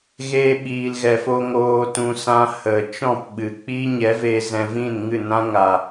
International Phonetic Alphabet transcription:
ɣeː˧ɓiː˨lɣɛ˨fo˧ ŋoː˨tũ˨ sã˧ hə˨ t͡ʃɔ̃˦˨pɓɨ˨ k͡piː˦ɲɛ˨˦veː˧ zɛ̃˧vĩ˦˨nŋɨ˦˨nã˦ ŋa˨

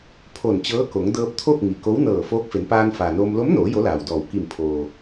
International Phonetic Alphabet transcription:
pʰo˧˩nt͡ɕɤː˧˥ko˩˧ŋ dɤː˧p̚t̪ʰo˥˨k̚ ŋi˩ko˧˥wnɤː˧˩ foː˧˥k̚fe˩˧npaː˧n faː˩noː˧m lo˧˥mnoː˩˧ jo˧˥laː˩wdɔː˧˩w ki˧˩m pʰoː˩

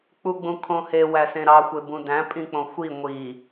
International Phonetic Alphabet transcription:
k͡puɡ͡bũkʰõhe wæsẽɾɑ xʷebũdæ̃ pʼĩk͡põxʷi ŋʷi

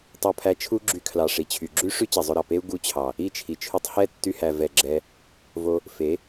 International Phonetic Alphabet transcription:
tˤo˧pʰæ˧t͡ʃʰu˦ ɡ͡ǁy˧kʰlɑ˨ ʂi˨t͡ɕʰy˨ ɡ͡ǁy˦ʂy˦ t͡ɕe˨zˤɵ˧ɾɑ˨ pe˦u̯ ɡu˧t͡ɕʰɑ˨ | i˦˨t͡ʃʰi˨t͡ʃʰy˧tˤ hɛ˦˨tːy˧hæ˨ vɛ˨ ɡ͡ǁɛ˧ | vo˧ | fe˨˦

